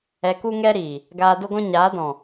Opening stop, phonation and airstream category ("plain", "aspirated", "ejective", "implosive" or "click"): plain